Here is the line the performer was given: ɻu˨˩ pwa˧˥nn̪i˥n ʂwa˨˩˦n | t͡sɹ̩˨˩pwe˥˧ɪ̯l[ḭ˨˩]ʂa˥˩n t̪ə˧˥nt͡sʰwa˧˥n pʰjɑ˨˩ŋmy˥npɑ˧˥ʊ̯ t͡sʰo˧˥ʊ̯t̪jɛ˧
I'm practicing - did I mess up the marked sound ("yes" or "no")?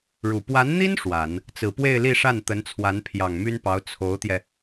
yes